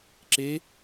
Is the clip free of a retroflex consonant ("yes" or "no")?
yes